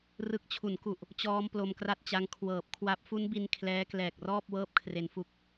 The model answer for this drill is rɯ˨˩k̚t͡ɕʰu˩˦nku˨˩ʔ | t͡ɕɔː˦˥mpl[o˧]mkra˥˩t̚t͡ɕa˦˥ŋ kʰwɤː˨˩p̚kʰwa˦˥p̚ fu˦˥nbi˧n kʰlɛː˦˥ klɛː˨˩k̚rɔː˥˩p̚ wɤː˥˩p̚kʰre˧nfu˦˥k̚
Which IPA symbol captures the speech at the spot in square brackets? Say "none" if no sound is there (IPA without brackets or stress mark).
o˧